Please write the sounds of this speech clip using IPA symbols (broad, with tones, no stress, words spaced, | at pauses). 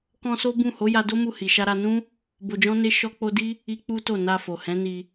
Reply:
kɔ̃˧so˦bũ˦˨ ho˨˦ja˧do˦mu˧ hi˨ʃa˧ɾa˧ nũ˦ | bo˧d͡ʒɔ̃˦ne˦ ʃɔ˦k͡po˦ di˦ | i˦k͡pu˦to˦˨ na˧fo˨hɛ̃˨˦ni˧